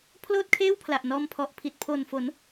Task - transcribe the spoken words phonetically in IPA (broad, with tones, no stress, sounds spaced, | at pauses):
pʰ l oː˥˩ t̚ kʰ eː˥˩ w pʰ l a˨˩ ʔ n ɔː˧ m pʰ ɔ˨˩ ʔ pʰ i˨˩ t̚ pʰ o˨˩ n f o˩˦ n